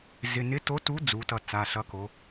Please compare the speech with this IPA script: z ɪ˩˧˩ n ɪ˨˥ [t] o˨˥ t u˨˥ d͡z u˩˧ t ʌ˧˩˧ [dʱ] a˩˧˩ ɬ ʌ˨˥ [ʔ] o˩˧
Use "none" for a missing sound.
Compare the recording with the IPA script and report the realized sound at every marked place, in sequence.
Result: t, t͡s, k

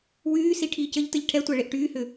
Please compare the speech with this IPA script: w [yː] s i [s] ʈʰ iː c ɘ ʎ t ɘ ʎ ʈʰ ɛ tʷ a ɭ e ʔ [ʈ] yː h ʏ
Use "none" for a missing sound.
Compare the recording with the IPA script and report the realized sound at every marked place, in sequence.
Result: yː, none, ʈ

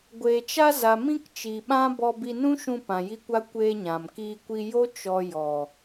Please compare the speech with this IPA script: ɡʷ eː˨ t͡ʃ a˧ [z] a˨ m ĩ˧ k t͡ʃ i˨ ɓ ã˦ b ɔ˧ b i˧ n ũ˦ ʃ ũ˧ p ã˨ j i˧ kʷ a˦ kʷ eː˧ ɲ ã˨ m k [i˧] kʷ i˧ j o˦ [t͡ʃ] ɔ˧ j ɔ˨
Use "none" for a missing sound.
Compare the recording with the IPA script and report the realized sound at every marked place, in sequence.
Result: z, iː˧, t͡ʃ

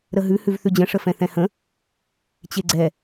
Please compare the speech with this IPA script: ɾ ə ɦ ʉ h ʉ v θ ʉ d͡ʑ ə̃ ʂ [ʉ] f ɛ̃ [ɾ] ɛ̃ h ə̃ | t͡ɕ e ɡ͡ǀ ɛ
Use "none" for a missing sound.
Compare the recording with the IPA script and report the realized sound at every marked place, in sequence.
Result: ə, θ

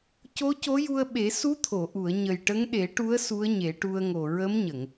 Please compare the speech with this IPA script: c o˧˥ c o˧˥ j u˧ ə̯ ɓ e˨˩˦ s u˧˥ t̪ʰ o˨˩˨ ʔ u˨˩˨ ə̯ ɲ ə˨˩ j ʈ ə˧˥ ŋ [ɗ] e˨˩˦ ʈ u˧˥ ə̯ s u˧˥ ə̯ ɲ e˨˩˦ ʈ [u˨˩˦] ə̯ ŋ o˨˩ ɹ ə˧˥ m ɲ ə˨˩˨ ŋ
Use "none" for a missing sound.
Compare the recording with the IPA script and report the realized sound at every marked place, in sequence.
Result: ɗ, u˧

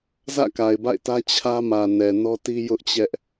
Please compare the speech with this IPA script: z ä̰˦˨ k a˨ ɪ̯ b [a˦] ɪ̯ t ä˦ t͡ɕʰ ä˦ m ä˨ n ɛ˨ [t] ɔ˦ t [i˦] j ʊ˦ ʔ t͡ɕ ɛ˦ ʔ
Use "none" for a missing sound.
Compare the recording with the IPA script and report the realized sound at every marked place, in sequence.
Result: a̰˦˨, n, i˦

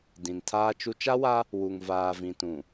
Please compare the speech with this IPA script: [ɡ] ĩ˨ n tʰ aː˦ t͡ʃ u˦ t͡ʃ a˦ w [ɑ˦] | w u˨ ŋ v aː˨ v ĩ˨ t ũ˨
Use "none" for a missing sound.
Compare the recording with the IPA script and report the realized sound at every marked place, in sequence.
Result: d, a˦

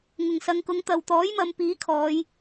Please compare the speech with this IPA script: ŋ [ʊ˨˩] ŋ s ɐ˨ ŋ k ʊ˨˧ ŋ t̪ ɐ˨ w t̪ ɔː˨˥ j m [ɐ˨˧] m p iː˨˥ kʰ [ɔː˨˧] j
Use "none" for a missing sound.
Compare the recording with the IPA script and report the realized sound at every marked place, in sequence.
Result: ʊ˨˩, ɐ˨˧, ɔː˨˧

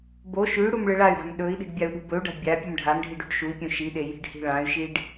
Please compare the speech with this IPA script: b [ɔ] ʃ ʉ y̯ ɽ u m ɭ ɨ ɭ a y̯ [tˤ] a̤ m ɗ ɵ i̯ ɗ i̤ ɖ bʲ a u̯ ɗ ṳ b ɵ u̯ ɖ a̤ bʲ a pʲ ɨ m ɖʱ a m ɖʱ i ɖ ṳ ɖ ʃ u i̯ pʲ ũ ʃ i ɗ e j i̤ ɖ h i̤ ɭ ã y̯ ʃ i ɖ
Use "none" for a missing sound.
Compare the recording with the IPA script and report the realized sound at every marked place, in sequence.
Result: o, ɾ

